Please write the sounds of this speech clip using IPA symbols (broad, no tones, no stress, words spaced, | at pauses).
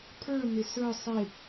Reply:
pʰə˞nɪ sə˞ sˤɪ